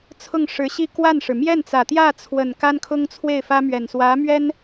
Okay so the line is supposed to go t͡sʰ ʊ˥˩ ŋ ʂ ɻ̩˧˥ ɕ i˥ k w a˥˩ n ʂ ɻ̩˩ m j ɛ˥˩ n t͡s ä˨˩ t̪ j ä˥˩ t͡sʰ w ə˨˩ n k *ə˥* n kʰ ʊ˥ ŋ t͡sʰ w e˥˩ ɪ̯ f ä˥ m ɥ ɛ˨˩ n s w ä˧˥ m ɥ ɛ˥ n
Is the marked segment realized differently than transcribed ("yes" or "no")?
yes